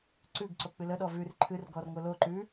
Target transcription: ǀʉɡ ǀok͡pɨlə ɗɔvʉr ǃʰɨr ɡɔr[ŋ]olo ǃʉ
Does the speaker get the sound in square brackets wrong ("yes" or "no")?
no